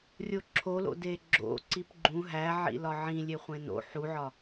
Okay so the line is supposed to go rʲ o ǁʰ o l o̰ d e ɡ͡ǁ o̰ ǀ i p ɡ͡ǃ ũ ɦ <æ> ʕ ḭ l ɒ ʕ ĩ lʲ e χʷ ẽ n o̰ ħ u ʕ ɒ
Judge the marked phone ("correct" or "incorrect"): correct